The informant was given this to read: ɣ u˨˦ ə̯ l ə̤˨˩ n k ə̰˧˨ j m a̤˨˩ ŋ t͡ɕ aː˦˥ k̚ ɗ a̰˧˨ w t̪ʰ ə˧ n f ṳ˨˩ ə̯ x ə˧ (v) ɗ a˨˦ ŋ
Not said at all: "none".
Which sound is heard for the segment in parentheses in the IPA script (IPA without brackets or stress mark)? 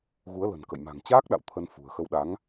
w